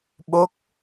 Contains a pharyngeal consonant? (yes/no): no